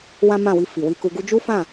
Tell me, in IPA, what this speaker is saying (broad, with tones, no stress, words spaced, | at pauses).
wã˦mã˦˨wi˧ fi˨wi˧ku˧ɡu˦ d͡ʒu˦fã˦˨